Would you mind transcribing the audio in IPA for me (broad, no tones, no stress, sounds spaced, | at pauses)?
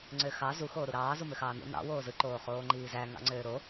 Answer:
ŋ͡ǀ ø x ɑ z u x oː ɾ u ɾ ɑː z u m ø x ɑː n ṵ n ɑ̰ w oː z ɯ ǃ oː χ oː ŋ͡ǃ iː z æ ŋ ɑ̰ ŋ͡ǀ øː ɾ o